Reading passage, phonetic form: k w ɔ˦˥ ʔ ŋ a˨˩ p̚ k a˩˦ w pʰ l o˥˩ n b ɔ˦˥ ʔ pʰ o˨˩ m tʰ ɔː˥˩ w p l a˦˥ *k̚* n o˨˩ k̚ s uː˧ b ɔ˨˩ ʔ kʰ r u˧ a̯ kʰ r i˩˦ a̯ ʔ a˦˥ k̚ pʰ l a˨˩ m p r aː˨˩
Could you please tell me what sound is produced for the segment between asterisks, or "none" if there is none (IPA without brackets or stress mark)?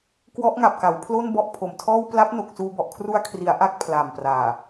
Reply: p̚